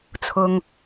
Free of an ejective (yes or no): yes